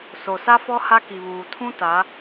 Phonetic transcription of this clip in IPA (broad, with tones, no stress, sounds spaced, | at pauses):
s o˨ s a˦ f ɔ˦ h a˦ k i˨ β uː˨ tʰ ũ˦ t a˨˦